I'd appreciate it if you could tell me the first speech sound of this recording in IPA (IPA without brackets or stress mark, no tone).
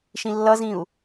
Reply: ʃ